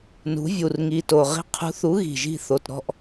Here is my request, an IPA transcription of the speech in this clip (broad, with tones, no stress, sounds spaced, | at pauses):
n ṳ˨˥ vʲ u˨˩ r ŋ i˨˩ t o˨˩ ʁ i̤˦˨ qʰ ṳ˨˥ θ u˨˥ ɣ i̤˨˩ ʒ i̤˦˨ θ o˨˩ t ɾ ɔ̤˦˨ ʔ